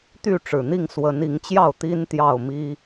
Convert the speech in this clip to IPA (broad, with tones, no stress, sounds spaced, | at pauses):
t̪ y˥˨ ʈ͡ʂ ɻ̩˨˩ n̪ i˥˨ ŋ s w ə˨˦ n i˨˦ ŋ t͡ɕ j ɑ˥˨ ʊ̯ t̪ i˦ n t̪ j ɑ˥˨ ʊ̯ m i˦